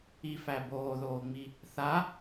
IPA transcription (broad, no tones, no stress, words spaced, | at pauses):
ifæ boːðoːŋ͡mi | θa